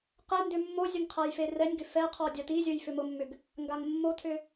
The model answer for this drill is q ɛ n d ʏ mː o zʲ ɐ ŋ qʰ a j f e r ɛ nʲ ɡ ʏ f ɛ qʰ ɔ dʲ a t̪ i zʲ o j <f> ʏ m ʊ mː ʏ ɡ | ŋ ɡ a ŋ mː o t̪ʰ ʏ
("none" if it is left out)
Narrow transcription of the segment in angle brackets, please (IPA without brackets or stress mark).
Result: f